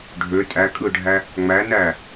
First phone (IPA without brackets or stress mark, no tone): ɖʱ